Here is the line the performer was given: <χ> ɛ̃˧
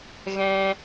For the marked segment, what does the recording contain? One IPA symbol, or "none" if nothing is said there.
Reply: ɣ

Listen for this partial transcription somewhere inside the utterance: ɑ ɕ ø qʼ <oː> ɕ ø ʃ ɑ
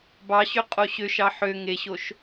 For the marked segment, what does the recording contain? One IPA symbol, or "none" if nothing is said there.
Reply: o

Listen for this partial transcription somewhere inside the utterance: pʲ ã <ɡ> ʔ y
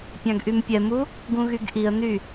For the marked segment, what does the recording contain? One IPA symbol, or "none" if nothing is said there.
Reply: ɡ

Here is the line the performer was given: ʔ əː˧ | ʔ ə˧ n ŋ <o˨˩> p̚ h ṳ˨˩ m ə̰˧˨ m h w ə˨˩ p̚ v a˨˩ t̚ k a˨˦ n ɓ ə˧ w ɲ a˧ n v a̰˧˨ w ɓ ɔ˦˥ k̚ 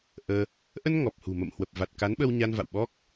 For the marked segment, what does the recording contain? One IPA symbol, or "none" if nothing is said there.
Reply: ɔ˨˩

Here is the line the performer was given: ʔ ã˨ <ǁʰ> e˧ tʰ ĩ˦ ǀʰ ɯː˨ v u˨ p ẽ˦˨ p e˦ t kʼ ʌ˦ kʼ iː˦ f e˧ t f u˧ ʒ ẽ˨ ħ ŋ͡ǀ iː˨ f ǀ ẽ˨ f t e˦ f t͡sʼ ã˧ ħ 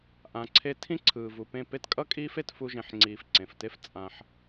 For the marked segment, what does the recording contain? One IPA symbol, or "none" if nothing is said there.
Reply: ǀʰ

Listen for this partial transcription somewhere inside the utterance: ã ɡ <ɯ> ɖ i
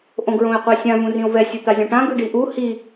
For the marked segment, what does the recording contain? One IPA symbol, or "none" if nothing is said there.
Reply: ɯ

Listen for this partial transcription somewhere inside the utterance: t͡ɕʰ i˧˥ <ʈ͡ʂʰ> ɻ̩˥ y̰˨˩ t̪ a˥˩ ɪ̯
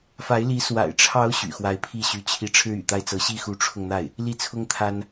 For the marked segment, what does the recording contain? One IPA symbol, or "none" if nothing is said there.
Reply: ʈ͡ʂʰ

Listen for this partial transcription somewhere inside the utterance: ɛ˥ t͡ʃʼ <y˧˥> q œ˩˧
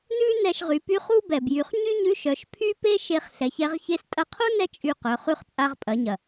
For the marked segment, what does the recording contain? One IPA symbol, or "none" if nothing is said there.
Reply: y˧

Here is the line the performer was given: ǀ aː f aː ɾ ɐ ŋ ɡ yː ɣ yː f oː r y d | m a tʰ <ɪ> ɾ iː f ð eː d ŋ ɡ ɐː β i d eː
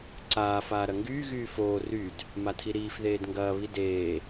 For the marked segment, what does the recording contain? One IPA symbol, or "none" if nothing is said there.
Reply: i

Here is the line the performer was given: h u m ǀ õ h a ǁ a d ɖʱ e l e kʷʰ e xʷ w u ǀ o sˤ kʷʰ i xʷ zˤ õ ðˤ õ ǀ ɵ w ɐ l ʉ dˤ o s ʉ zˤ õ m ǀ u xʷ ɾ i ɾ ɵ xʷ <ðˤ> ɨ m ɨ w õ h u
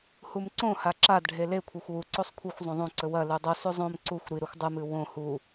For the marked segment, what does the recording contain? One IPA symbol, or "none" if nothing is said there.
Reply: dˤ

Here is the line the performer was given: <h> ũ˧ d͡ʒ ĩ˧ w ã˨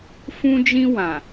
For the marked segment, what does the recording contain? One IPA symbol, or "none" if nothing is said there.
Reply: f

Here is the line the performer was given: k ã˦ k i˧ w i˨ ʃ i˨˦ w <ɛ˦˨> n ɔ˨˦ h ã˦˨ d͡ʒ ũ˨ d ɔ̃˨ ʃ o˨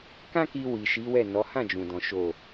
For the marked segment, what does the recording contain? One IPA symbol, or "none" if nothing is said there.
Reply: ɛ˦˨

